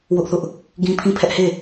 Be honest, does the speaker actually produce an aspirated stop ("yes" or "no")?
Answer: yes